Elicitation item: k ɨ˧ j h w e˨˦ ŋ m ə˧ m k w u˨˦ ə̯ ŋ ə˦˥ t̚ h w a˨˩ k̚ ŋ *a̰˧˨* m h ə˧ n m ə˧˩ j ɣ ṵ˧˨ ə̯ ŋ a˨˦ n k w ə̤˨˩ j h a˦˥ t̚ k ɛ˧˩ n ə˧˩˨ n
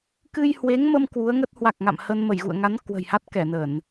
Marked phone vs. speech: correct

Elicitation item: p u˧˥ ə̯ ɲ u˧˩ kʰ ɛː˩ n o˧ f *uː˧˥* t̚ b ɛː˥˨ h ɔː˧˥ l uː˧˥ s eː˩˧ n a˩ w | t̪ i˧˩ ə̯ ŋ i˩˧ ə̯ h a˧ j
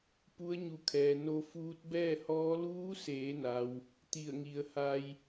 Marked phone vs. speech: correct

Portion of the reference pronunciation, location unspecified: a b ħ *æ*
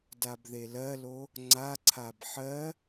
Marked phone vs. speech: incorrect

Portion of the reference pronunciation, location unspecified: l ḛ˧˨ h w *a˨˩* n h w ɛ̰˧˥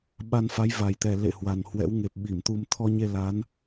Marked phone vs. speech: correct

